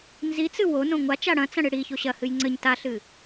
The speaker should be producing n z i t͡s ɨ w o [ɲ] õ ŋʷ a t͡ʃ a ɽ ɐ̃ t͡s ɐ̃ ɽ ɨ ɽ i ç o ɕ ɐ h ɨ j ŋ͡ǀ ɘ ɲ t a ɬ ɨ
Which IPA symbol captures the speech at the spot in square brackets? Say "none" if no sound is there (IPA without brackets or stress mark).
n